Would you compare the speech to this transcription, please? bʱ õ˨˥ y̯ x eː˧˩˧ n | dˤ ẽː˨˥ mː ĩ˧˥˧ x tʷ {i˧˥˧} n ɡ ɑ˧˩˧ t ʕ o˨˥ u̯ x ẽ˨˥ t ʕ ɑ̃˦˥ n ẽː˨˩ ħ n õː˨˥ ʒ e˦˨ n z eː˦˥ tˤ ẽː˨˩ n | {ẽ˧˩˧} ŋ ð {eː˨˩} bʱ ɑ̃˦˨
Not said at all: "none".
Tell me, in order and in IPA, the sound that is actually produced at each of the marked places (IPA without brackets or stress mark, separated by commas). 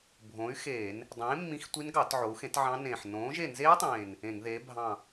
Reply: i˦˥, ẽ˧˩˧, eː˨˥